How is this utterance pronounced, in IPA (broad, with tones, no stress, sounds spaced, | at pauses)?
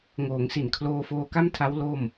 ŋ oː˩˦ ŋ s i˨˩ n kʰ l oː˧ f oː˧ k a˥˩ m tʰ a˦˥ w l o˥˩ m